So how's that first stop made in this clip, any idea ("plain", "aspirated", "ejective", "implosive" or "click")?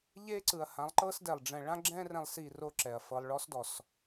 click